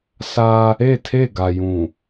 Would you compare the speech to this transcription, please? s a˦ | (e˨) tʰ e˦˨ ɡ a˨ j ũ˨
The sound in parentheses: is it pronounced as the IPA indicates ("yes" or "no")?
no